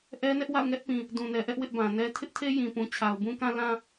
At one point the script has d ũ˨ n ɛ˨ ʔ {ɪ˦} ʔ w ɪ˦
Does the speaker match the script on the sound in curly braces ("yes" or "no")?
no